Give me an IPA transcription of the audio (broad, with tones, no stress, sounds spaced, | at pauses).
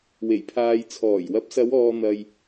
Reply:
w e˨˩ j pʰ aː˨ j t͡sʰ ɔː˨˩ j w ɐ˨˥ p̚ s ɐ˨˧ w ɔː˨ n̪ ɐ˨ j